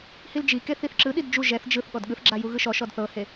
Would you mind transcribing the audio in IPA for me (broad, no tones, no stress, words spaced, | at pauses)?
hild͡ʒike θiθǁɯɗid d͡ʒu ʒɛθ d͡ʒɯθ ɠɔdɠɯθɡ͡ǁa juɣɯʃɔʃɔd θɤhe